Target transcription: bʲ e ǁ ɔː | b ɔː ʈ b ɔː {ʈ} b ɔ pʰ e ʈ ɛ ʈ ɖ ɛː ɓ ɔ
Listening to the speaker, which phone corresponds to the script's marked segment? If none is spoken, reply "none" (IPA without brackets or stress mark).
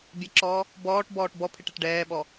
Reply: ʈ